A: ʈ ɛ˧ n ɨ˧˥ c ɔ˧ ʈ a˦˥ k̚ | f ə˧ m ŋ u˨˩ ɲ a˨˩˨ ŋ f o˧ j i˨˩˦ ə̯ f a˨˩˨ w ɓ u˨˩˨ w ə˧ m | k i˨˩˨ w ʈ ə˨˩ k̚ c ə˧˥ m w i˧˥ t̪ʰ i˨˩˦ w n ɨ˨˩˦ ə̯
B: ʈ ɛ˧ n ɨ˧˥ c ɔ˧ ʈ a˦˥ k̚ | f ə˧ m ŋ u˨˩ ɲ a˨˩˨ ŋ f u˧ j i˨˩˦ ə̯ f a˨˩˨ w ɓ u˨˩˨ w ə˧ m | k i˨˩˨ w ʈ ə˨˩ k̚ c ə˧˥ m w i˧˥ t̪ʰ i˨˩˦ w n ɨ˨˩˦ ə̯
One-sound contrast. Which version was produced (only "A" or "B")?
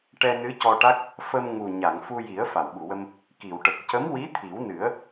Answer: B